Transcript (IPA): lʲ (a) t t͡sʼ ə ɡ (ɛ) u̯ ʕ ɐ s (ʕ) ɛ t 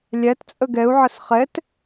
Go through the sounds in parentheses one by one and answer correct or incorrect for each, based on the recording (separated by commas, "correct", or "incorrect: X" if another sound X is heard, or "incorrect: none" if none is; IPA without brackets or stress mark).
incorrect: æ, correct, incorrect: χ